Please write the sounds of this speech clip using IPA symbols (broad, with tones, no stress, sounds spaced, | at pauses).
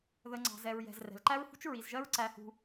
ð ə˨ ŋ͡ǀ ɑ̤˨ z ɛ˨ ɹ j ɛ̤˨ z r ɛ̤˨ l ǃ æ˦ ɹ h ṳ˦ t͡ʃ ɹ i˨ z ʒ ɜ˦ ɹ ǀ æ˦ h ṳ˦